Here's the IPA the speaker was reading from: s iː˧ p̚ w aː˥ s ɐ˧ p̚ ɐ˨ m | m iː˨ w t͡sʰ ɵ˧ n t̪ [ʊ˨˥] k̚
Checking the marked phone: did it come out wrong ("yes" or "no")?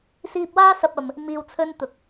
no